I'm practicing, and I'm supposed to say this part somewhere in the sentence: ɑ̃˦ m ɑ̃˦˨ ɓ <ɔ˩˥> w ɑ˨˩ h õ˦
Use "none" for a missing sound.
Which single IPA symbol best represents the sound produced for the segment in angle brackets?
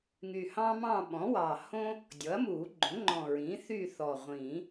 ɔ̃˩˥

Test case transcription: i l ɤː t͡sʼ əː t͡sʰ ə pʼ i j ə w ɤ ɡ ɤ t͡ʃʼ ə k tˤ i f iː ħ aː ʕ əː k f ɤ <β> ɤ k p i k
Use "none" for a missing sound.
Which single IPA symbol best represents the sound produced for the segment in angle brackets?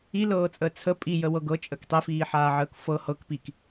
h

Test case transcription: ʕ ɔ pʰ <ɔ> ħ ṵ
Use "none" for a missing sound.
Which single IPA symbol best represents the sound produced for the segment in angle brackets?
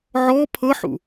ɤ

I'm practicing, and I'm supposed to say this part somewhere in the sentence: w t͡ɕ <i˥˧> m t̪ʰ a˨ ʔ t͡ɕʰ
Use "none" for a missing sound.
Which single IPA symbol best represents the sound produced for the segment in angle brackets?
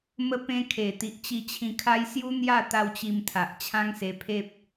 i˧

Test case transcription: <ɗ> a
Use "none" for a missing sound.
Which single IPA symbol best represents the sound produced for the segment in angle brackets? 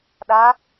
ɗ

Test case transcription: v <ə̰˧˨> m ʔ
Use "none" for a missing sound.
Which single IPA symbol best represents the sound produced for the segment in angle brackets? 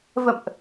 ə̰˧˨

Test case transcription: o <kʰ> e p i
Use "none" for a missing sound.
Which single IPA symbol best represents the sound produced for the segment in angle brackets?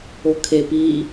kʰ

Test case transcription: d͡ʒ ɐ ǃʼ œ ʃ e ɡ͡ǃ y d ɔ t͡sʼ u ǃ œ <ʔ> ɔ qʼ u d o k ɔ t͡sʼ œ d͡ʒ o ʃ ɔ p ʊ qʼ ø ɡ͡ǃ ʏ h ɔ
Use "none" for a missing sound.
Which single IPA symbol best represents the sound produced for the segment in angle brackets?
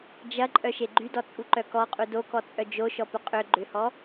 k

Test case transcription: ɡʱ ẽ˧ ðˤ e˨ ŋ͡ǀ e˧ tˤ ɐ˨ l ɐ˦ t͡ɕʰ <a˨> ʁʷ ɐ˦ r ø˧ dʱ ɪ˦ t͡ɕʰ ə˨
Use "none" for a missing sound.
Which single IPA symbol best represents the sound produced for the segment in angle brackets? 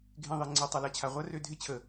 a˨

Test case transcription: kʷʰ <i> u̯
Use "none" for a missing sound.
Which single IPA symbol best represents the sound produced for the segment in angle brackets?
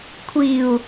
i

